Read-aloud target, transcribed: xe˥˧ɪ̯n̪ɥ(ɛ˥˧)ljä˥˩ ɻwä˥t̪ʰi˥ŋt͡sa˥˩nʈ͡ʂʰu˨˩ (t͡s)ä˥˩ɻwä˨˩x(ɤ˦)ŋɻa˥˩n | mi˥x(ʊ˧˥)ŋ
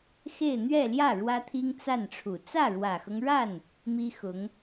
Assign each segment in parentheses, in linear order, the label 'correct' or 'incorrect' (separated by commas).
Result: correct, correct, correct, correct